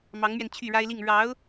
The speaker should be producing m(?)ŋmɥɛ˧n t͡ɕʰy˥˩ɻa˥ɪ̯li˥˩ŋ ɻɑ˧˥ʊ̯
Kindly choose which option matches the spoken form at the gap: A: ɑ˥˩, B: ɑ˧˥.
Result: B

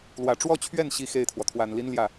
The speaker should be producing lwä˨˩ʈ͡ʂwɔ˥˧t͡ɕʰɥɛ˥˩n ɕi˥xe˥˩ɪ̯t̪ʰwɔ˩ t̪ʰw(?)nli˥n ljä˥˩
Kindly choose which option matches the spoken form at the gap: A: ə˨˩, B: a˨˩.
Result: B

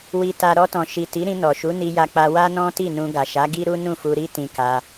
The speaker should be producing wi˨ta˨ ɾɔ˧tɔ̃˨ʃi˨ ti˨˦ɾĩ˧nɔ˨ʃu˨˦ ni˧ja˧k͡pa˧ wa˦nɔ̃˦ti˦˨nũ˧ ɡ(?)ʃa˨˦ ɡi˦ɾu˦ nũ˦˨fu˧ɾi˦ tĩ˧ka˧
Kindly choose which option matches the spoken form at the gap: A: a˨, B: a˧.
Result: A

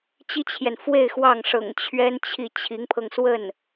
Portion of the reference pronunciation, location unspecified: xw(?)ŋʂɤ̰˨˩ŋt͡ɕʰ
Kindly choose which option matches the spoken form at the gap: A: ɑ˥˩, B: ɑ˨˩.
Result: A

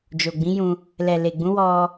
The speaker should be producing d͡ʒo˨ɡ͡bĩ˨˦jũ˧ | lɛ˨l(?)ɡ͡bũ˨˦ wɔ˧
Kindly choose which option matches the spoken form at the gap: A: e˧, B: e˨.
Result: B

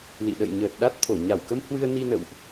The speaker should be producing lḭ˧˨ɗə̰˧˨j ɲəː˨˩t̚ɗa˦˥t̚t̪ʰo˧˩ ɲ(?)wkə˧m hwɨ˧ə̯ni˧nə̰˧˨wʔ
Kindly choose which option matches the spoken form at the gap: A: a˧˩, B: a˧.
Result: A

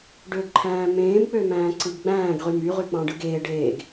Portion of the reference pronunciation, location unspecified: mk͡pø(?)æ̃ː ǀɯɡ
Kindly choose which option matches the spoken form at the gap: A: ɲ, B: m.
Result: B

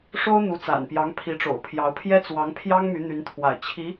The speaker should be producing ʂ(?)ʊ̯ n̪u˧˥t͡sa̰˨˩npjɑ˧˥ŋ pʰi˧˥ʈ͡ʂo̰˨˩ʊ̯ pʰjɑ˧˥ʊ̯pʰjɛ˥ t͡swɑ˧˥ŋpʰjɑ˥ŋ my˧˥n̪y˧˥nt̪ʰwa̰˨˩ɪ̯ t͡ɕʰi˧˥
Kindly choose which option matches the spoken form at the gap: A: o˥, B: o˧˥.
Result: A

